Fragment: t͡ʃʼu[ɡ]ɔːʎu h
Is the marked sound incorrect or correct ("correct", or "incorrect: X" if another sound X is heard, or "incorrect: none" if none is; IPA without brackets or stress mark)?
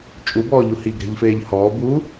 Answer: incorrect: b